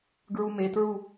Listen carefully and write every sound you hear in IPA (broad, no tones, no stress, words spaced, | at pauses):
ɡɹumetɹu